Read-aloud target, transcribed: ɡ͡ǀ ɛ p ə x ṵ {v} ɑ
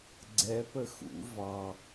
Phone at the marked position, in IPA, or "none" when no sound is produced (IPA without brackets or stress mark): v